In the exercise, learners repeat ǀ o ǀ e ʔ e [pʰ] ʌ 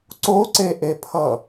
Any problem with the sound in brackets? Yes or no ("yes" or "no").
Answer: no